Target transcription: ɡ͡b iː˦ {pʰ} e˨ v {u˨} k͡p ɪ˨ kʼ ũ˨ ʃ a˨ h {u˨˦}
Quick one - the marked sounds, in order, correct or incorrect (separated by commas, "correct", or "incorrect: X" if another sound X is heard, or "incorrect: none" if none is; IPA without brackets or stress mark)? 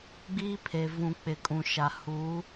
correct, incorrect: ũ˨, correct